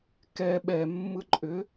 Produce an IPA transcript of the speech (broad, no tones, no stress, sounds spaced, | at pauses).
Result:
k ɛ ɓ ɛ mː ɯ ǃʼ ʏ